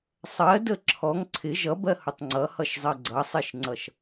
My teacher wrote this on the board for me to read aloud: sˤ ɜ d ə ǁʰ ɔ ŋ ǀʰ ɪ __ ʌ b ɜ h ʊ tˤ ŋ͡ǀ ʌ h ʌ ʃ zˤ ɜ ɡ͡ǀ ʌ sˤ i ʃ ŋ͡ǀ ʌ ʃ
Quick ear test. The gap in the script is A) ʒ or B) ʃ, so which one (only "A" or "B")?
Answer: A